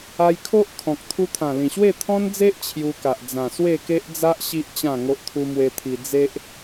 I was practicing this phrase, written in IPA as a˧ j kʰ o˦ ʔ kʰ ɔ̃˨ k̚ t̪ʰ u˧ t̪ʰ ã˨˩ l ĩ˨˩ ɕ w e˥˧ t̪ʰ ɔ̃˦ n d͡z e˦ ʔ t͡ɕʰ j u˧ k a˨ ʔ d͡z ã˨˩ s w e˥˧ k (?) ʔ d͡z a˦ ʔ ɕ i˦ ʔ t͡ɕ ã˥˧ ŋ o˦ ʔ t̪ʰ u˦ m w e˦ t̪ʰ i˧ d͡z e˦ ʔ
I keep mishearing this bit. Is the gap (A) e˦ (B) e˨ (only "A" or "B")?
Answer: A